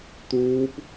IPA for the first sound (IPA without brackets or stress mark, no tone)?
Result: t̪